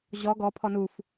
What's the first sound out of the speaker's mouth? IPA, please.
ʑ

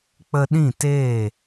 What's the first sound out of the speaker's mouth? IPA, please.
k͡p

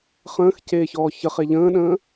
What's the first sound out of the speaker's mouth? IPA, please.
χ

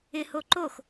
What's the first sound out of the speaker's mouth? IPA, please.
ɪ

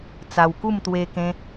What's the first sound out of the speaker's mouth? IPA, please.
t͡s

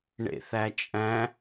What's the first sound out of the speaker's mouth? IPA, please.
ɳ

